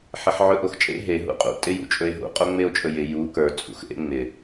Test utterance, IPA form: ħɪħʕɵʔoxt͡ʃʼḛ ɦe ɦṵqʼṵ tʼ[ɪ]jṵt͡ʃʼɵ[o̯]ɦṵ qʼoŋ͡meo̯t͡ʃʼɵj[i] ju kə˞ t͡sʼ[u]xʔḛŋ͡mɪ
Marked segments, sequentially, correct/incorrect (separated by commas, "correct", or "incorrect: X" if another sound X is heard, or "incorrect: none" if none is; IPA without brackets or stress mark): correct, incorrect: e̯, incorrect: ɪ, incorrect: ṵ